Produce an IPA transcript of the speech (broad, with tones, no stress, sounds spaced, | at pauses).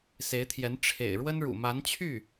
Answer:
s e˧˥ ɪ̯ t̪ʰ j ɛ˧˥ n ʈ͡ʂʰ ḛ˨˩ ɪ̯ ɻ w ə˥ n ɻ ṵ˨˩ m a˧˥ n t͡ɕʰ y˥˩